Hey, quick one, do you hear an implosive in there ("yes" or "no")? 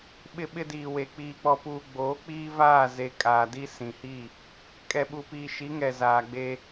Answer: yes